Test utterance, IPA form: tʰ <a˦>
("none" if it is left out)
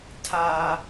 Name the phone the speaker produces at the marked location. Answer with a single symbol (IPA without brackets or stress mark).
a˦